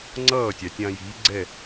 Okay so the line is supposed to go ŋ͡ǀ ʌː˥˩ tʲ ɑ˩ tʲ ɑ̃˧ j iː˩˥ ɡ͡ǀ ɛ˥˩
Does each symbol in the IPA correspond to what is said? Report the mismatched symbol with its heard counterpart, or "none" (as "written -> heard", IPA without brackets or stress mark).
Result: none